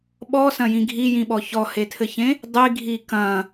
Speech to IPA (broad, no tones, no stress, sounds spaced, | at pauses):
ɓ ɔ s ɐ̃ j ĩ ɡʱ i j ĩ ɓ ɔ ç ɔ h e tʰ ɘ ç ẽ | dˤ i ɡʱ i k ɐ̃